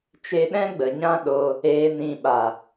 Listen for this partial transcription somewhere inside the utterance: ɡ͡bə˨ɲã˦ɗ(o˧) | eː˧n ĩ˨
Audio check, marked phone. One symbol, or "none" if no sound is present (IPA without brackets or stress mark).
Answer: o˧